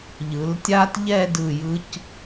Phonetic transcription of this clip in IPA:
ʎɯ˩˧ltʲa˥t ʎɛ˥˧dɯ˧˩jɯ˧c

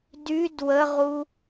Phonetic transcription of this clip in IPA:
dyd wəʁu

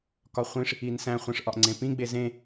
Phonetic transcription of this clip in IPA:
kɒχʷĩʂ | insæ̃ χʷẽʂʔɒʔŋ͡ǀẽpĩ ɡ͡bezẽ

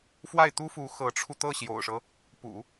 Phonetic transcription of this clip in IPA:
fwa˥˩ɪ̯t̪u˥fu˧˥ xɤ˧˥ʈ͡ʂʰu˧ t̪ɤ˥˩ɕjo̰˨˩ʊ̯ʂɤ˦ | pṵ˨˩˦

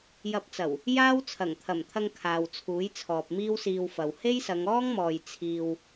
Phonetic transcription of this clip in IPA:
jɐ˧p̚t͡sɐ˨˩w | jaː˥w t͡sʰɐ˨˩ŋt̪ʰɐ˨˩mt̪ʰɐ˧ŋ kʰaː˨w t͡sʰuː˨˥jt͡sʰɔː˨p̚ miː˥wsiː˧wfɐ˨w he˥jsɐ˨˧ŋɔː˥ŋmɔː˨j t͡sʰiː˨w

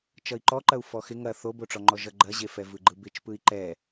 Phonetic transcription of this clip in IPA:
t͡ʃʌi̯ǃɔǃɐu̯ fɔxɪ ŋɐ θoboʈ͡ʂɔŋ͡ǃɔ ʒʌɡ͡ǃɐʑe fɛvɯɡ͡ǃɯbɪt͡ʃ pɯi̯ǃɛ

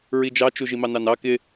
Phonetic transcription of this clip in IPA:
ɹid͡ʒɑt͡ʃu ʒimɑnɑnɑ kɪ

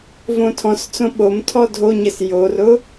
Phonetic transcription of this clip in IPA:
võtʰɔ̃st͡sõ ɓomtʰɔ dʱoɲɘs jorʊ

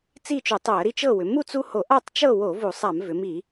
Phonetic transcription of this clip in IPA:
t͡si˥˨t͡ʃu˧˩˧tˤo˧˩˧ə̯ɾi˦ t͡ʃɤ˥˨wʏ˩˧ mu˥˨t͡su˦ho˧˩˧ ʔa˥˨tˤt͡ʃɤ˥˨ wo˧˩˧ vu˧˩˧sˤa˧˩˧m vʏ˩˧mi˧˩˧

